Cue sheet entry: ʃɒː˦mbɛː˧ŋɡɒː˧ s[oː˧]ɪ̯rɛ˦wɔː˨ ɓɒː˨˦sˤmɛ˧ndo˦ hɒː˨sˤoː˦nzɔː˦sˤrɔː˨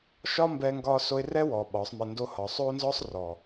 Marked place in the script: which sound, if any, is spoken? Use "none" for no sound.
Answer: o˧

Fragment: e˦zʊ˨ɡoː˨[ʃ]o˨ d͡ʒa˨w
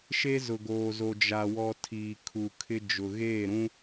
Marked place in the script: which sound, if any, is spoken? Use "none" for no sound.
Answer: z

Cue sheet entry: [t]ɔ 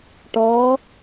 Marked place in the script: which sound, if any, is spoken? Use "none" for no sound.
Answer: ʈ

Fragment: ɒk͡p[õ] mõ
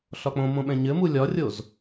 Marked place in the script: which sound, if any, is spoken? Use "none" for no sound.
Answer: õ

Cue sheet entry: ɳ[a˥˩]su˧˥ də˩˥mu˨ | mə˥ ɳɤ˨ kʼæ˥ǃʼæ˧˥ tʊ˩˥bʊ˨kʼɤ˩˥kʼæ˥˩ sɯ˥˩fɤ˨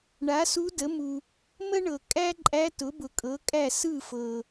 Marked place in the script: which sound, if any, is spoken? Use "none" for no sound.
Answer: a˩˥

